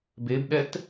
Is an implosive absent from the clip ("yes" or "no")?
no